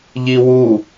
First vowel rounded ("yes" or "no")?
no